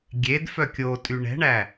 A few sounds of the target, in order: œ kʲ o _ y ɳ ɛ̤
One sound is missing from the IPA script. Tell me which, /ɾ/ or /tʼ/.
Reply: tʼ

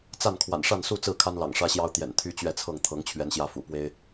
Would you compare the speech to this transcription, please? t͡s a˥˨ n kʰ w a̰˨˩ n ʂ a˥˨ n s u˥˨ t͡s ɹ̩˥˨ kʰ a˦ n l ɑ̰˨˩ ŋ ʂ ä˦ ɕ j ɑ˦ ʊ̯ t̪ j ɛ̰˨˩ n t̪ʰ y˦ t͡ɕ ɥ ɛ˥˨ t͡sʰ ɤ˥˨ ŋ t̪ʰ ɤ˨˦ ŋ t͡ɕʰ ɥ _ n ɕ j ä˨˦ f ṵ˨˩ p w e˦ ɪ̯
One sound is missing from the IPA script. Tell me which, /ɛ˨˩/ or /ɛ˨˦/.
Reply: ɛ˨˦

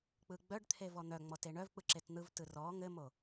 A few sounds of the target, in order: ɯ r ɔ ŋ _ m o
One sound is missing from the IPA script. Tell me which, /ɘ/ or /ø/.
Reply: ɘ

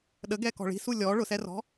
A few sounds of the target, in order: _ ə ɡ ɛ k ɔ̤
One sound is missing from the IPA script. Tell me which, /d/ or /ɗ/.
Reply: ɗ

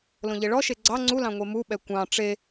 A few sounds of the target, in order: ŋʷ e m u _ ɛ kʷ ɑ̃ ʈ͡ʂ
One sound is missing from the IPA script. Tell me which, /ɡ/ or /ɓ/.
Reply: ɓ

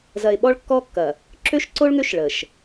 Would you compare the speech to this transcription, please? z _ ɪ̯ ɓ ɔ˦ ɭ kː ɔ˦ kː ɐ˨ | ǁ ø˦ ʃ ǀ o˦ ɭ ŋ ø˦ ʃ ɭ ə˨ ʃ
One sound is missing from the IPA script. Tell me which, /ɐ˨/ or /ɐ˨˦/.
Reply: ɐ˨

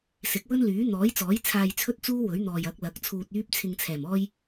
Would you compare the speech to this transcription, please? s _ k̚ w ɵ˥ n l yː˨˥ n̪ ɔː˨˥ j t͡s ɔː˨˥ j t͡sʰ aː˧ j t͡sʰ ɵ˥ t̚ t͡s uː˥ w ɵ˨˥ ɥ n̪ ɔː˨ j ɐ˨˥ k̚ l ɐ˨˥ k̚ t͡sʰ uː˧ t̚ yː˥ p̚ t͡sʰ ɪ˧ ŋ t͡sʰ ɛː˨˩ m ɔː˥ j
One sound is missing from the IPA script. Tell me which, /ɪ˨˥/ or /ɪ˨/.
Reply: ɪ˨˥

